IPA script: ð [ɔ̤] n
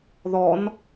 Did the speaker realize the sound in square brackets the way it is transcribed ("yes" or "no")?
no